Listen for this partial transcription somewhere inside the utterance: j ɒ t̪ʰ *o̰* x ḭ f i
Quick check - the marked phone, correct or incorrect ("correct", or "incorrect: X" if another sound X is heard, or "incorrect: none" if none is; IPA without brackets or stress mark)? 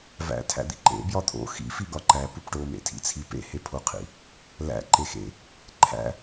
correct